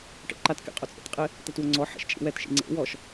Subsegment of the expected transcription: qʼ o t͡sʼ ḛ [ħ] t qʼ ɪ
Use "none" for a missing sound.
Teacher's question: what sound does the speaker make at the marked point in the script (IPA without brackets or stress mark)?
none